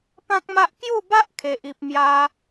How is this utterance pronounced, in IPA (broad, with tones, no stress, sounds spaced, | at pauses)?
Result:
p ã˦ k̚ m a˦ ʔ k j u˥˧ b a˦ ʔ kʰ e˨ ʔ i˨ p̚ m j a˦